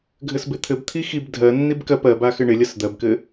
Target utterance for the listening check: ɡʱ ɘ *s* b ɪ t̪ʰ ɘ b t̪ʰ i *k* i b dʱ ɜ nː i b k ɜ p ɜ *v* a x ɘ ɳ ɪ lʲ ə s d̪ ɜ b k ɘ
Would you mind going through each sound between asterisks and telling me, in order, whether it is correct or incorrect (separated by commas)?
correct, incorrect, incorrect